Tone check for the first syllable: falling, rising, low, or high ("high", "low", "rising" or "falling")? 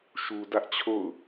low